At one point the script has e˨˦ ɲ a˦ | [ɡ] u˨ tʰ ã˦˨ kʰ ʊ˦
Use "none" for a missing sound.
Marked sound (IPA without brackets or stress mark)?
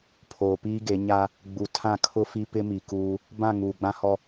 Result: ɡ͡b